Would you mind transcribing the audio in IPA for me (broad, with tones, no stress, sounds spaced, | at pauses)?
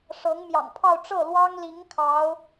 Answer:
ʂ ɤ˧˥ ŋ m j ɑ̰˨˩ ŋ pʰ ɑ˥˧ ʊ̯ ʈ͡ʂ ɤ˥˩ l w ɑ˥ ŋ l i˧˥ ŋ kʰ ɑ˧˥ ʊ̯